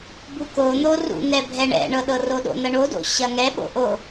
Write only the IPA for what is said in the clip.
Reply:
b u k o n̪ o r ṵ n̪ ɛ bʱ ɛ ɳ ɛ̰ ɳ ɤ ɗ ɤ r o ɗ o̰ n̪ ɐ ɳ o d o̰ ɕ ɐ ŋ ɛ ɓ o̰ ʔ o

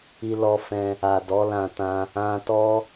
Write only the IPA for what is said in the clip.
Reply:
i˦ l ɔ˦ f ɛ̃˦ | a˨ d ɔ˨˦ l ã˧ t ã˧ | ã˧ t ɔ˦

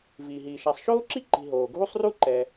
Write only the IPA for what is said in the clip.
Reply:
v iː˩ ɦ iː˩ ʃ a˩ sˤ ʃ oː˥ ǁ i˥ ǃ i̤˩ ɦ oː˩ ɡʱ u˥ sˤ r u˥ ǃ ɛ˩

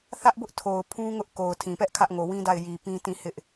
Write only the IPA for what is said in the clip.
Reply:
θ ä˦ ʔ b ʊ˦ ʔ tʰ o˨ ʊ̯ pʰ ũ˦ ŋ ʊ˦ ʔ k o˨ ʊ̯ tʰ ĩ˨ p ɛ˦ ʔ kʰ ä˦ ʔ ŋ o˨ w ĩ˦ d a˦˨ ɪ̯ j i˨ p ĩ˦ t ĩ˦˨ h ɪ˦ ʔ

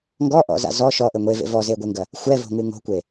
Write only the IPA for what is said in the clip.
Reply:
ŋ ɡ ɔ ʔ ɔ̰ z a̰ z ɔ ʃ ɔ ʔ ɘ ŋʷ e v ḛ v ɔ z e ɡʷ e ŋ ɡ ɐ | xʷ ɛ v o̤ ŋ ɨ ŋ o̤ kʷ e

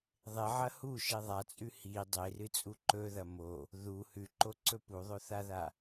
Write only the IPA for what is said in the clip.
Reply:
ðˤ e ʕ ɐ h u ʃ i ðˤ a t͡sʼ ʉ h i dˤ e r ɨ t͡sʼ u ǃ ɵ ð ɐ m o | ð u h ʉ ǃ o ǀ ɵ p u ðˤ o θ a ð a

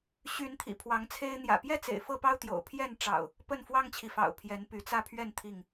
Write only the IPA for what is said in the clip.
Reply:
ɕ y˨˦ n t̪ʰ ḭ˨˩ pʰ w ɑ˨˦ ŋ t͡sʰ e˦ ɪ̯ n̪ j ä̰˨˩ p j ɛ˦ t͡s ḛ˨˩ ɪ̯ f ɤ˥˨ p ɑ˦ ʊ̯ t̪ j o̰˨˩ ʊ̯ pʰ j ɛ˥˨ n ʈ͡ʂ ɑ̰˨˩ ʊ̯ | p ə˥˨ n f w ɑ˦ ŋ t͡ɕʰ i˨ f ɑ̰˨˩ ʊ̯ pʰ j ɛ˨˦ n p y˨˦ t͡s ä˥˨ pʰ ɥ ɛ˥˨ n t̪ʰ i˥˨ ŋ

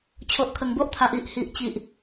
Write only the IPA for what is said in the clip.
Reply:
t͡ɕʰ o˨ ʔ kʰ ə˨˩ ŋ b o˦ ʔ t̪ʰ a˨ ʔ i˨ ʔ h i˨ ʔ t͡ɕ i˨ ʔ

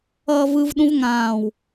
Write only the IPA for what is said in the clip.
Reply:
ʌː v ɯ v ɗ ũ v ŋ ãː w

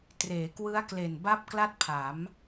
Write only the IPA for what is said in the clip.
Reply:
t r eː˩˦ k w ɯ˦˥ a̯ k l e˨˩ n b a˦˥ p̚ k l a˥˩ t̚ pʰ a˩˦ m

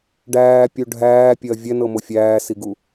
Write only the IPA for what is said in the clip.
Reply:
ɖ æː pʲ u ɖʱ æː pʲ ɜ vʲ ɛ n ɤ m o fʲ æː s i ɡ u

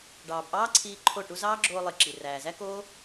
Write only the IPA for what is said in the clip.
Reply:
ɖ ɑː˨ b ʔ ɑː˦ ǀʰ iː˧ ǃʰ o˦˨ ʈ u˦ z ɑː˦ ɡ͡ǁ oː˧ lˠ i˨ ǁ i˨ r æː˨ z æ˦ k oː˦

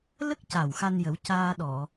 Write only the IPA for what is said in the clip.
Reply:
l ə˦˥ k̚ c a˨˩ w x a˧ n j ə˨˩˦ w c aː˧ ɗ ɔ˨˩˨

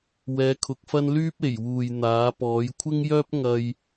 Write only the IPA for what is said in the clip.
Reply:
w ɛː˨˥ kʰ ʊ˨˥ k̚ f ɐ˥ n l yː˥ p̚ e˨˩ j w uː˨ j n̪ aː˨˥ p ɔː˨˥ j kʷʰ ɪ˥ ŋ j œː˥ p̚ ŋ ɐ˧ j

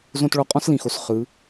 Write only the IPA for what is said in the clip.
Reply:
z õ˦ t ɭ ɔ˦ qʼ ɔ̃˦ s l ĩ˨ x o˨ s χ ɯ˨˦

